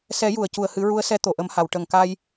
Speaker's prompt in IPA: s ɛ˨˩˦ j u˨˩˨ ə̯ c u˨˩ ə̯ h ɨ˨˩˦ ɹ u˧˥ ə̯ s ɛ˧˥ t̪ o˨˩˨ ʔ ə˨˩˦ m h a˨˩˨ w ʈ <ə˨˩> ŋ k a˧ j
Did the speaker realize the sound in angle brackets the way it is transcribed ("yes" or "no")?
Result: yes